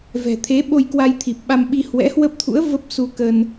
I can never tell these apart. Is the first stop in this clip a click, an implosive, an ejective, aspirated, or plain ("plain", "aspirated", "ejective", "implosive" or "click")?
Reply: aspirated